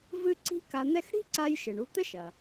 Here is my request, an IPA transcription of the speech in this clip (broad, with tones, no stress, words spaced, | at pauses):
vɨ˥ ǀi̤˥ka˧n̪ɛ˥x ɽi̤˥ǀa˧jʃɘ˩ɳ u˧t̪ɘ˥ʃɐ˩